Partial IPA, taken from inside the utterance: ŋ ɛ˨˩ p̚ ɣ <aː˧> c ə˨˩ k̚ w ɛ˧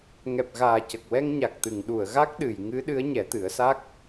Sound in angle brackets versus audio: incorrect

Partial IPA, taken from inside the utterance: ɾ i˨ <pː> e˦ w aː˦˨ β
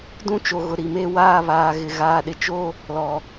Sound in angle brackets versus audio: incorrect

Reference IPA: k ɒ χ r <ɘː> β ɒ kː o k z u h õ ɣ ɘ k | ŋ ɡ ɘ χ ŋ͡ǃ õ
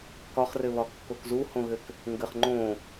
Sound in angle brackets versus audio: incorrect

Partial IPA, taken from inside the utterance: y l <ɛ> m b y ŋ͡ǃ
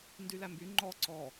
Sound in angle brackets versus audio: incorrect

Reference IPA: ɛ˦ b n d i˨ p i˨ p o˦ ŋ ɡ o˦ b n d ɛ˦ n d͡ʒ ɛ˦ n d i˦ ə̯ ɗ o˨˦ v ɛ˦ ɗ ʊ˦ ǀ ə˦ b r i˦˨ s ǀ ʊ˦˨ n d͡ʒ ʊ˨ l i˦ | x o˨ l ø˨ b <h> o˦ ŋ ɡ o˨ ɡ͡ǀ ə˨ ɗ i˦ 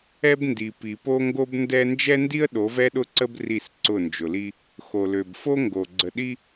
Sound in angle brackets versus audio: incorrect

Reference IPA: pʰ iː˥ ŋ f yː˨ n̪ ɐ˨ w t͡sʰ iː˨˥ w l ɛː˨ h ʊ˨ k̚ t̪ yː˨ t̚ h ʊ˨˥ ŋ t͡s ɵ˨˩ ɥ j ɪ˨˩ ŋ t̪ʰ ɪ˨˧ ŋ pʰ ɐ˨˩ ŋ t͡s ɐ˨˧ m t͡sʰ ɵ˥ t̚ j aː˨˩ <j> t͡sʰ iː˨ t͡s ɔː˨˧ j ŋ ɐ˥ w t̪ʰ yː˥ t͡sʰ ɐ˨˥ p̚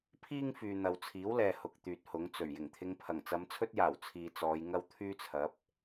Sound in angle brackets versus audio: incorrect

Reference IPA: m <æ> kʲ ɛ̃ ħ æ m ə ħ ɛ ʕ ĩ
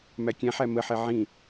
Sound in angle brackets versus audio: correct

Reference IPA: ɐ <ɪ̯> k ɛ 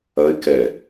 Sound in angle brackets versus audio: correct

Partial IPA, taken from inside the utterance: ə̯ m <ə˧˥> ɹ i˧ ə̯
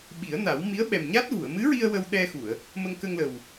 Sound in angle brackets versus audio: incorrect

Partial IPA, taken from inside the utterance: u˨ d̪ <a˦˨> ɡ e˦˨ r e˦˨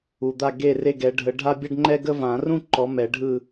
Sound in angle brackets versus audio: correct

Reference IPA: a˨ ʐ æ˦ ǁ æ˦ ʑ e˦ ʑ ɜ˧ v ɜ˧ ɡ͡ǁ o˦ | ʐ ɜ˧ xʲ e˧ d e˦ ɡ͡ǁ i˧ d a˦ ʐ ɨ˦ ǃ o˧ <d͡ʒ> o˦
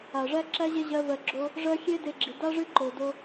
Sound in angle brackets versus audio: incorrect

